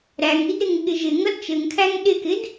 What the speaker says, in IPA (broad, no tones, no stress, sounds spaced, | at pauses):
ɾ æ ŋ i d ɾ ɪ ŋ ɠ ɪ ʒ ɪ ŋ ʌ d t͡ʃ ɘ ŋ kʰ æ ŋ ɗ ɪ k ɪ d